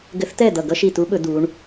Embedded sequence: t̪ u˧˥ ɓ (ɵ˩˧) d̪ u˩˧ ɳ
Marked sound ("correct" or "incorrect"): correct